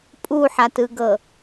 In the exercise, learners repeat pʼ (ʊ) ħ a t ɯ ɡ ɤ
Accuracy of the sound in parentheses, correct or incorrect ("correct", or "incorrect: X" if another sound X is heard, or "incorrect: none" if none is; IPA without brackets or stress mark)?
incorrect: u